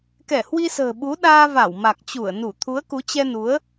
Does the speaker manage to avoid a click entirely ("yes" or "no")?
yes